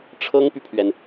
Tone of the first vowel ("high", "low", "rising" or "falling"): high